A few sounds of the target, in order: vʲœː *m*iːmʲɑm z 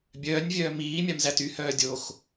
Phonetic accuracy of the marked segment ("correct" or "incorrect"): correct